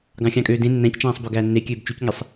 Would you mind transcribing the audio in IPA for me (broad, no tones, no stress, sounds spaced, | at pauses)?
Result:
ɡ ɑ̃ xʲ ɑ̃ kʼ øː d ẽ nː æ̃ c t͡ʃ æ̃ː sˤ b ø ɡ æː nː e kʲ øː b t͡ʃ y c ŋ e sˤ